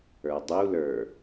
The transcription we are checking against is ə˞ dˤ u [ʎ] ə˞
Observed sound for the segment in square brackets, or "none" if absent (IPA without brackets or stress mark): l